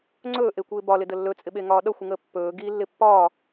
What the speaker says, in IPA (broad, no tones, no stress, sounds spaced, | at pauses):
ŋ͡ǀ ɵː ʔ e kʷ ɪː b ɒ l ɪ d ə lː ɵ t͡sʼ ɪ ɓ e ŋ ɒː ɗ ʌ xʷ ɪ ŋ əː pː ɵː ɡ i lː ɪ pː ɒː